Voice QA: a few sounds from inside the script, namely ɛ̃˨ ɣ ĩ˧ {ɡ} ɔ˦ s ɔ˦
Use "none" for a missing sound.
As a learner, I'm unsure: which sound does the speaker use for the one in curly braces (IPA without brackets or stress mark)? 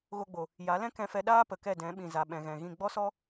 ɡ͡b